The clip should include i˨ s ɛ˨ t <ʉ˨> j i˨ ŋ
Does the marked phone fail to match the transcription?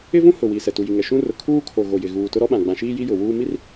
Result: yes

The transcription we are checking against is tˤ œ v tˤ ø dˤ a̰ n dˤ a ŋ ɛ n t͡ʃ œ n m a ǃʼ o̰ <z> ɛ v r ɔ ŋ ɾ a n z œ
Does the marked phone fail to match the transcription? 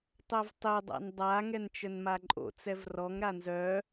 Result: yes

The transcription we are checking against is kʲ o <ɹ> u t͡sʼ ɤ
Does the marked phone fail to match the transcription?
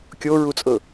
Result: no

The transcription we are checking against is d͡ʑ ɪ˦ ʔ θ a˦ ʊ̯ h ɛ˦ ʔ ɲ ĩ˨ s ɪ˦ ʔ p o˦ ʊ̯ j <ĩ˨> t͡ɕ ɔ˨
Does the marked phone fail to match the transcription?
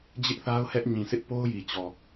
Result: yes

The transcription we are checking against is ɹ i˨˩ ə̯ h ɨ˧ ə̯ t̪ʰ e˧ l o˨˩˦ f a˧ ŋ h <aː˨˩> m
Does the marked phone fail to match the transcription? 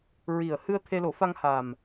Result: no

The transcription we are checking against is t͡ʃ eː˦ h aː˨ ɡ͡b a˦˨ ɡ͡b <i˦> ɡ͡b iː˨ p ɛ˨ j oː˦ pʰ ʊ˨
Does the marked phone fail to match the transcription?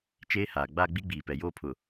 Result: no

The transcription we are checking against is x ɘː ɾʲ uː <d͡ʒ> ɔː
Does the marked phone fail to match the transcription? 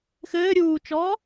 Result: yes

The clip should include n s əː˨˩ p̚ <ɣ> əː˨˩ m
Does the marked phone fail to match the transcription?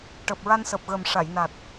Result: no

